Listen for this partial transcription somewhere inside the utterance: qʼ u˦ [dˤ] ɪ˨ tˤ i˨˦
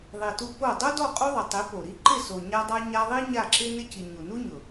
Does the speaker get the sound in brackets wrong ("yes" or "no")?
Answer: yes